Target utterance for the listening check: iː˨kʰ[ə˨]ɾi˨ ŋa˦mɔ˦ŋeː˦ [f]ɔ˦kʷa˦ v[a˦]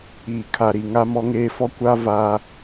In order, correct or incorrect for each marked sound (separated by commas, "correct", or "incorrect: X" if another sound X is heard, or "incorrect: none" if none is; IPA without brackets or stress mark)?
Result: incorrect: a˨, correct, correct